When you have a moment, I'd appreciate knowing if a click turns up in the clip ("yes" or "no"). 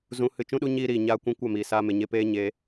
no